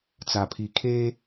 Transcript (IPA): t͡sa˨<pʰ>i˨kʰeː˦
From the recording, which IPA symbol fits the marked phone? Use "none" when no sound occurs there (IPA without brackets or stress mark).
pʰ